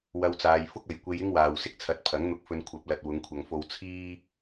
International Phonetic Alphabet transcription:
w ɐ˧ w t͡s aː˨ j f ʊ˥ k̚ ɐ˨ j kʷ e˧ j ɪ˥ ŋ w aː˨ w s ɪ˥ k̚ t͡sʰ ɐ˨˥ t̚ pʰ ɐ˨˥ ŋ n̪ ʊ˧ k̚ f ɵ˧ n kʷʰ ɐ˨˥ p̚ l ɐ˨ t̚ w ʊ˨˧ ŋ kʷʰ ɐ˨ ŋ f o˧ w t͡sʰ iː˥

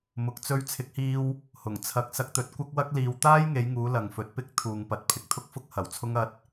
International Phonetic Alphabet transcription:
m ʊ˨˥ k̚ t͡s ɵ˥ ɥ t͡sʰ ɪ˨˥ k̚ h iː˧ w | h ʊ˨˩ ŋ t͡sʰ ɐ˧ k̚ s ɐ˧ k̚ t̪ ɵ˨˥ t̚ kʷ ɐ˥ k̚ w ɐ˥ k̚ l iː˧ w t̪ aː˥ j ŋ e˨˧ j ŋ uː˨˧ l ɐ˨ ŋ f ɵ˨˥ t̚ p ɪ˥ k̚ t̪ʰ uː˨ ŋ p ɐ˨˥ t̚ pʰ ɪ˨ k̚ t̪ʰ ʊ˥ k̚ f ʊ˥ k̚ h ɐ˨˩ w t͡sʰ ʊ˥ ŋ ɐ˧ t̚

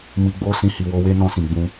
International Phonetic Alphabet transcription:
m i˧ ɡ͡b o˦ s ĩ˧ h i˨ w o˧ w e˦ n ɔ̃˧ s ĩ˨ ɡ͡b ũ˧

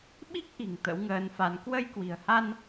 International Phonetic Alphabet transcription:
ɓ i˦˥ k̚ ʔ i̤˨˩ ŋ t̪ ə̰˧˥ w ŋ əː˨˦ n f a˨˦ n k w ə˧ j k w i̤˨˩ ə̯ h a˧ n

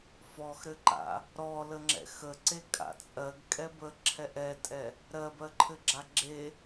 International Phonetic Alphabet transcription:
f ɔ x ɾ ɘ ǃ a̰ | ɾ ɔ l ə ŋ͡ǁ ɛ̰ x ə ǀ e kʼ a̰ t͡sʼ ɜ ɡ kʼ ɛ b ə ǁʰ ɛ ʔ ɛ tʼ ɛ | ɾ ɜ b ɜ ǃʰ ɘ ɡ͡ǁ a ɡ͡ǁ e

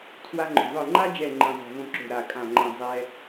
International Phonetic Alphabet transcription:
tʰ w a˧ ŋ͡ǃ o̤˨˩ ðˤ ɯ˨˩ ŋ͡ǃ a˧ d͡ʒ ɛ˨˩ ŋ͡ǃ ĩ˨˩ zˤ e̤˨˩ v õ˧ ǁ o̤˨˩ ɾ a˨˩ kʼ ã˨˩ ŋ͡ǃ ɛ̃˨˩ zˤ ɛ˧

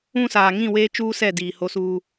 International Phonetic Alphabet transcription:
ũ˦ s aː˨ ŋ ĩ˦˨ w eː˦ t͡ʃ uː˦ s ɛ˦˨ d iː˨ h o˦ s uː˦

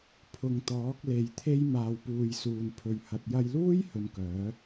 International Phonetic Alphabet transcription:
pʰ ʊ˨ ŋ t̪ ɔː˨˥ k̚ l e˨˧ j t̪ʰ e˥ j m aː˨ w p uː˨ j s uː˨ n pʰ ɵ˨ ɥ h ɐ˨ t̚ j ɐ˧ j l uː˥ j h ɵ˧ n k œː˨˥

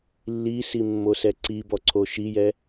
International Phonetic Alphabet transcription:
lː i s i mː o s ɛ ǀ i b ɔ ǀʰ o ʃ i j ɛ

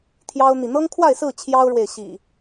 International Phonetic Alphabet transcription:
t̪ʰ j ɑ˦ ʊ̯ n̪ i˨ n̪ ɤ˦ ŋ kʰ w a˥˨ ɪ̯ s ɹ̩˥˨ t͡ɕʰ j ɑ˦ ʊ̯ ɻ w e˨ ɪ̯ ɕ ḭ˨˩

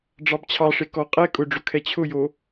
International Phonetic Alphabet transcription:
ɖ͡ʐ ɑ b t͡ɕʰ ɑ ʂ e k ɔ qʼ ɛ kʼ ʊ ɖ͡ʐ ʊ kʰ ɛ t͡ɕʰ ʊ j o

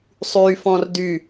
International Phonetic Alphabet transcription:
sˤ y f ɔ̃ r d y

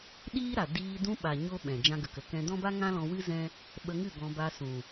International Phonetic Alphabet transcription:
ɗ iː˦ ɾ a˨ d iː˧ d ũ˧ ɓ a˨ ɲ o˦ ɓ ɛ̃˨ d͡ʒ ã˧ ɡ ə˨ k ə˨ k ɛ̃˧ d ɔ̃˦ b a˦ ŋ ã˦ l ɔ̃˧ w ɨ˦ z ɛ̃˦ | ɓ ə˧ ŋ ɨ˦˨ ɡ ɔ̃˧ b a˧ s ũ˨

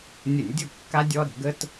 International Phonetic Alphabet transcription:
nʲ ə˧˩˧ nʲ dʲ ʊ˥˩ kː a˦ dʲ ɔ˦ ɾ ə̤˧˩˧ ɡ ə˦ t

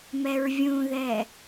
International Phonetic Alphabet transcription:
m ɛ ɹ vʲ ũ ð ɛ

